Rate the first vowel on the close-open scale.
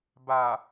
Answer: open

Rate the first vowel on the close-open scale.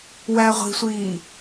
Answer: open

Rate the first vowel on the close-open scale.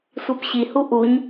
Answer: close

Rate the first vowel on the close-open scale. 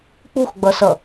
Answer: close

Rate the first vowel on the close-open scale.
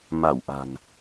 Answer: open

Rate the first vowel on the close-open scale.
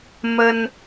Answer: mid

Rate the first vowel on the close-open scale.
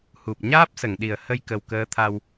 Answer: close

